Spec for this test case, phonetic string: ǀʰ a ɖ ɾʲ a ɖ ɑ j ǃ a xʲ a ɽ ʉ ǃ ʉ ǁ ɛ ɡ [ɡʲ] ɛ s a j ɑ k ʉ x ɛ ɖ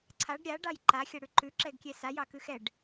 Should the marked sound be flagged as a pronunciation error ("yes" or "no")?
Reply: yes